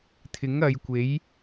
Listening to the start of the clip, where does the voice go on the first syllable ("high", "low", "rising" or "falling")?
rising